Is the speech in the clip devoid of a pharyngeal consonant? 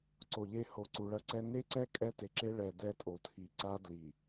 yes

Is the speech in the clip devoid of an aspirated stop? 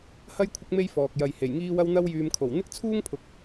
no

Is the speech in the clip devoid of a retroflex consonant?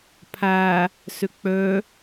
yes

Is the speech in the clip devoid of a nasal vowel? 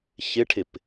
yes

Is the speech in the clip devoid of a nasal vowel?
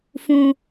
no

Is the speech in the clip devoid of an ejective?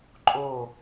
no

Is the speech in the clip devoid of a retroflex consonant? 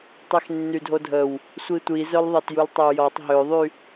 yes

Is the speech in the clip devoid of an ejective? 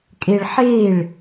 no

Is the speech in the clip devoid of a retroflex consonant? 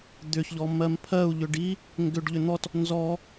no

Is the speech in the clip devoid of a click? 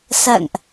yes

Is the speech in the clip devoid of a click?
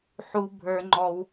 no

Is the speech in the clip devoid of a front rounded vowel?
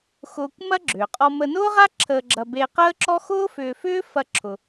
no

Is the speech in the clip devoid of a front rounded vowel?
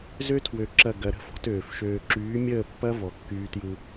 no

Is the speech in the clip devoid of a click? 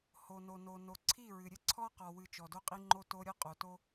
no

